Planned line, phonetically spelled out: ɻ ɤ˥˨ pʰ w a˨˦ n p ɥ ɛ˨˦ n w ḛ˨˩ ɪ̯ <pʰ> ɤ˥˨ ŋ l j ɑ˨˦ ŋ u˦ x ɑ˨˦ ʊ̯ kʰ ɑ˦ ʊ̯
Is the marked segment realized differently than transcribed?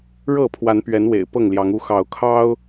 yes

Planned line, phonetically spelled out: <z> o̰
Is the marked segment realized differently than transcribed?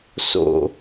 yes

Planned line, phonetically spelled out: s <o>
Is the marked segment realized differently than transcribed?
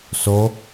no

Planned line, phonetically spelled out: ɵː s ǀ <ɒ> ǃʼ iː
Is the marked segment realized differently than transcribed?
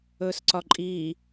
no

